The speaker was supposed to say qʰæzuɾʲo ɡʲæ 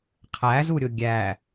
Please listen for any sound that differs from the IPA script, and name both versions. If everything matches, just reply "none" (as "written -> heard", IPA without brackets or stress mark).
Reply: none